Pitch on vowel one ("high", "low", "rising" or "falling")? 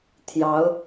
rising